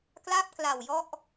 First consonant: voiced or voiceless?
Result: voiceless